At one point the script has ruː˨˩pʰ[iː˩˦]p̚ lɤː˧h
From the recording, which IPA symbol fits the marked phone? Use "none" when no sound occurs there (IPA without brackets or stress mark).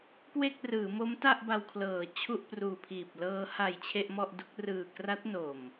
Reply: iː˨˩